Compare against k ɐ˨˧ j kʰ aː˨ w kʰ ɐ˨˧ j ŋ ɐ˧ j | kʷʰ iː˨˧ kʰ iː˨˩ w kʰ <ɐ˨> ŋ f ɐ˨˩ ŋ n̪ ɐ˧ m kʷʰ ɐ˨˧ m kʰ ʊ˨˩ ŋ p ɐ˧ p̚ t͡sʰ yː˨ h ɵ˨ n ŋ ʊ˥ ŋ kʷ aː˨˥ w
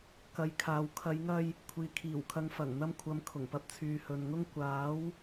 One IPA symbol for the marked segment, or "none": ɐ˨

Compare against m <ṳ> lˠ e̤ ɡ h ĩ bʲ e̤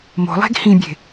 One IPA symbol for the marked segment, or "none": o̤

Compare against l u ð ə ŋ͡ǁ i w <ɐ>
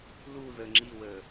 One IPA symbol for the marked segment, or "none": ə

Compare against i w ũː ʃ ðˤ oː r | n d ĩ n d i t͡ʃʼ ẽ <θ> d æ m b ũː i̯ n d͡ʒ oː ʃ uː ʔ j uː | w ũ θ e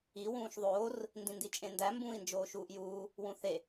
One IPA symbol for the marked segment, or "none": n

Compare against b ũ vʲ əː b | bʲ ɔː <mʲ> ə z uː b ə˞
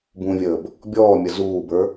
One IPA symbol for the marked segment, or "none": mʲ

